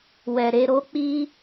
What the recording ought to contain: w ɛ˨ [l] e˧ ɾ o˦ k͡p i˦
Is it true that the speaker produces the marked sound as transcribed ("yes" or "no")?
no